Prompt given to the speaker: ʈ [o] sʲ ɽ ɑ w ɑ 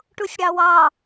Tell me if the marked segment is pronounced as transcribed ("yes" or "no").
no